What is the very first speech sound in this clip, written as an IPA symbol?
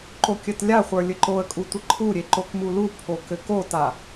ǃ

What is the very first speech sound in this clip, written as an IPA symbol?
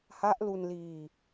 h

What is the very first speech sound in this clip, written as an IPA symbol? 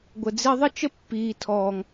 ɡʷ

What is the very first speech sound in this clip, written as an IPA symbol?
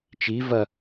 t͡ʃ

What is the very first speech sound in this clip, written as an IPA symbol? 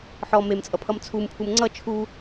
ħ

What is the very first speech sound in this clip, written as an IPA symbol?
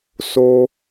s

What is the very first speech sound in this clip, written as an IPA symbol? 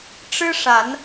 ʈ͡ʂ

